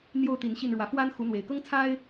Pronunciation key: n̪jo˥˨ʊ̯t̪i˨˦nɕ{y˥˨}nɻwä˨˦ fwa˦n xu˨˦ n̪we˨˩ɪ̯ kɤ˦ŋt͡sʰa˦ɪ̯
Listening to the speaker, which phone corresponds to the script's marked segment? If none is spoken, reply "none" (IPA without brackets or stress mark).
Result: i˥˨